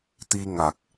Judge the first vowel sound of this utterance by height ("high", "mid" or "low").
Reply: high